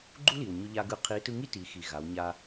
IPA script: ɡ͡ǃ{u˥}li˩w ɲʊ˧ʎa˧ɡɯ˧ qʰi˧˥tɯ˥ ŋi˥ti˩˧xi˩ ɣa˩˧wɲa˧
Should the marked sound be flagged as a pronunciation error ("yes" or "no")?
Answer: no